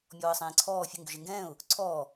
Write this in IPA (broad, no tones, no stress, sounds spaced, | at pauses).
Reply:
mʲ ɔː ə̯ sˤ ẽː ǀʰ ɔː fʲ ə ŋ ɡ ʏ ʒ e ŋ ɡ ɛ̃ː ʊ̯ | ǀʰ ɔː